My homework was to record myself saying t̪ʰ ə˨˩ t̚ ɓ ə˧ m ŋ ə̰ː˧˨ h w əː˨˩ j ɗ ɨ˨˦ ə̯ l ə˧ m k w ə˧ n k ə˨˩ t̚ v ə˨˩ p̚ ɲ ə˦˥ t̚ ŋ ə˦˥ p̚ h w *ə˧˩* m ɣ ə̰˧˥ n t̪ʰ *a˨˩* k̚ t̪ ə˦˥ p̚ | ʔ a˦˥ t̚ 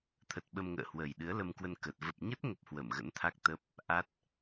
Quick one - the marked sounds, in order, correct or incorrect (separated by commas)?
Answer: correct, incorrect